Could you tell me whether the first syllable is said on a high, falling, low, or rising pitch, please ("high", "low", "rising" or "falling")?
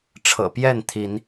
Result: low